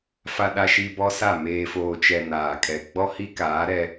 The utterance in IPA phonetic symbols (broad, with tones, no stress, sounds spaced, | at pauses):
f a˨ ɗ a˨ ʃ i˨ b ɔ˦ s a˦˨ m eː˨ f oː˨ t͡ʃ ɛ˨ n aː˨ kʼ ɛ˨ ɡ͡b ɔ˦ h i˦ k aː˨˦ ɾ ɛ˦